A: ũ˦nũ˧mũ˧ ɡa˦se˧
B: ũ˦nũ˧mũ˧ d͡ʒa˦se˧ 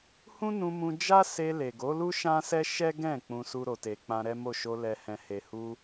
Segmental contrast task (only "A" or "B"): B